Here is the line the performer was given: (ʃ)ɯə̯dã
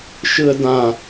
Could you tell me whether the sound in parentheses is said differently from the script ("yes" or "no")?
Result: no